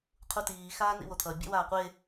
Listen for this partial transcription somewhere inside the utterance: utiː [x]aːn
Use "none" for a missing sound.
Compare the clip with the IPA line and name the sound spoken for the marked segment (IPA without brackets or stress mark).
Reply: x